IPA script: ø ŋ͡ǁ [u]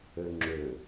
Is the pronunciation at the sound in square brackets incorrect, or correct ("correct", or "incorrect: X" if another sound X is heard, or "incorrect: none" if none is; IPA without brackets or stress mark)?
incorrect: ø